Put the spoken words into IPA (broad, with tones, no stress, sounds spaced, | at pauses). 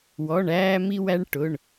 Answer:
w ɔ˩˧˩ ɳ æː˧ m i˧ w æ˧ ɳ ʈ ʊ˩˧˩ ɳ